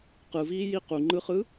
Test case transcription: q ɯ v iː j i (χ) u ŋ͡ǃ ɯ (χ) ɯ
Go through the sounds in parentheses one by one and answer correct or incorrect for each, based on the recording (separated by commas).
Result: incorrect, correct